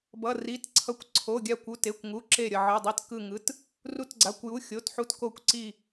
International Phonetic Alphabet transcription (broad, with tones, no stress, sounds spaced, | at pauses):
b ʌ˩˧˩ r i˩˧˩ t ǀʰ ʌ˧˩ kʷ ǀʰ o˩˧˩ ɡʲ a˧˩ kʷ u˩˧˩ t e˩˧˩ kʷ ŋ u˩˧˩ ǁ e˧˩ ɾʲ ʌ˧˩ ʕ ɯ˩˧˩ dˤ i˧˩ t k ɯ˧˩ ŋ ɯ˩˧˩ t | r u˧˩ t ɡ͡ǀ a˩˧˩ kʷ j u˩˧˩ xʲ o˩˧˩ t ħ u˧˩ t k o˧˩ kʷ ǀ i˧˩